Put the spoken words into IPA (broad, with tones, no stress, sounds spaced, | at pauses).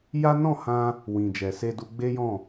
j a˦ n ɔ̃˦˨ h ã˧ | w ĩ˨ d͡ʒ ɛ˨ s e˧ d u˧ ɡ͡b e˦ j ɔ̃˦˨